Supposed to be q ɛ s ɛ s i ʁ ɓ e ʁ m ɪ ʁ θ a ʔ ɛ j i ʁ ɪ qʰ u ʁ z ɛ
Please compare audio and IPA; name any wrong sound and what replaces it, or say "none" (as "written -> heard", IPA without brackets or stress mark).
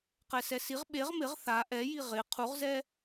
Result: none